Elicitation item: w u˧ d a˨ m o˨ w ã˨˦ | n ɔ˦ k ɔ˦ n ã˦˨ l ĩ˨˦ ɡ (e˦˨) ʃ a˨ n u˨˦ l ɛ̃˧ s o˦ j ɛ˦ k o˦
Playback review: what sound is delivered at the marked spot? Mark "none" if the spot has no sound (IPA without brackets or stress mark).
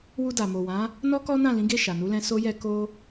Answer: e˦˨